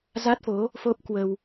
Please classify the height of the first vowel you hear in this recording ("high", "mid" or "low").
low